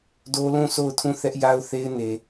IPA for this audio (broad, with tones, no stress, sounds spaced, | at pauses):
d o˦ l ũ˦˨ s o˦˨ ʊ̯ tʰ ũ˦˨ θ ɛ˦ ʔ j a˦ ʊ̯ θ e˦ ɪ̯ n e˨